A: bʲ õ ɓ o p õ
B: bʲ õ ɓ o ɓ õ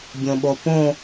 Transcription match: A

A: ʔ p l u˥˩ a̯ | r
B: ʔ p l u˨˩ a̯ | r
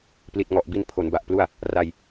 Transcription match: A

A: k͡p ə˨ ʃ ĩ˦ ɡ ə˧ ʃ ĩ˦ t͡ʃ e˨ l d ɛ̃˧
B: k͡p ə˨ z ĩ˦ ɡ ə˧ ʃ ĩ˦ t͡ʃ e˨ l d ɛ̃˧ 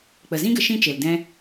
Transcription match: B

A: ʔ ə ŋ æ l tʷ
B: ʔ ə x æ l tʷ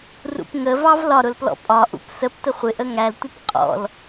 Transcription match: A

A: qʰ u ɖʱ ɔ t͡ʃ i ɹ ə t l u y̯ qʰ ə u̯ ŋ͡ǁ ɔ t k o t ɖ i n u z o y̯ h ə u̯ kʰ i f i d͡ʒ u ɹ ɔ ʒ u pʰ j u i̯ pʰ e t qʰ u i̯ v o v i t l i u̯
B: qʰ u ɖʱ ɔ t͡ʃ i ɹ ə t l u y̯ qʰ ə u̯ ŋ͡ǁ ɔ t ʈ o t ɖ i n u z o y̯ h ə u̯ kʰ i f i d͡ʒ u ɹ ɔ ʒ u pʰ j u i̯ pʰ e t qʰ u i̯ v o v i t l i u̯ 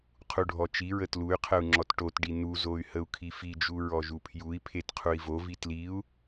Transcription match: B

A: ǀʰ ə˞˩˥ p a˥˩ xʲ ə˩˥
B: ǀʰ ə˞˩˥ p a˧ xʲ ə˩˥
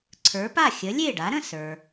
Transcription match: A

